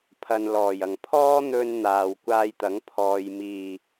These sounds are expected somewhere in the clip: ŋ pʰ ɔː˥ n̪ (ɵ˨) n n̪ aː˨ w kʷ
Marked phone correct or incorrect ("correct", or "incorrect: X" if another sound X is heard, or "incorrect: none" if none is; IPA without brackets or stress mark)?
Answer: incorrect: ɵ˧